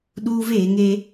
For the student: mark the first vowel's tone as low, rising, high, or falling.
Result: high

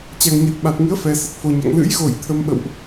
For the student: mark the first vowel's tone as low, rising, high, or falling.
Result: low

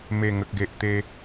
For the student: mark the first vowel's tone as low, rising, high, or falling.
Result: low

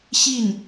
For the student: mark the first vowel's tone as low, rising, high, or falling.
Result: falling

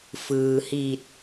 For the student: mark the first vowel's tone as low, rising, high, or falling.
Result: low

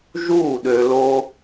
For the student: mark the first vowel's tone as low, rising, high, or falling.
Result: falling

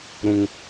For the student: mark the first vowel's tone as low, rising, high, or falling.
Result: high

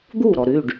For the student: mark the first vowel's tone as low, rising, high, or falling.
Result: falling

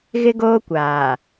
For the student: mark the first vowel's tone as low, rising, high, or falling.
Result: high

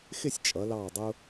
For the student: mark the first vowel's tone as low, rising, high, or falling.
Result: falling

